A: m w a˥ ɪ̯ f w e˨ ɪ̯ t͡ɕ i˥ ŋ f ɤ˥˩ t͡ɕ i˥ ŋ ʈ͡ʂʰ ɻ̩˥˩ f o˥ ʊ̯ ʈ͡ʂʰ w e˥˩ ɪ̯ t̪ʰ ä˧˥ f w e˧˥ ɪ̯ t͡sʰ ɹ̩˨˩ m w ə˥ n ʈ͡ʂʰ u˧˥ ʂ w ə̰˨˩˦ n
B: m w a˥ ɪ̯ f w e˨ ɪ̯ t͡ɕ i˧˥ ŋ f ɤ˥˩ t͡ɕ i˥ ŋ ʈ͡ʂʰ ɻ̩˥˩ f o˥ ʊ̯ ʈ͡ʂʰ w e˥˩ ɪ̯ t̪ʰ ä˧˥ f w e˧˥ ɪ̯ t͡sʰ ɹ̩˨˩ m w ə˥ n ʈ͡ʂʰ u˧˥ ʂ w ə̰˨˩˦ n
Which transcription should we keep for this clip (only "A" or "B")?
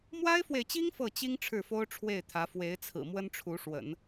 A